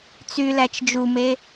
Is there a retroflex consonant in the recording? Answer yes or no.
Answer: no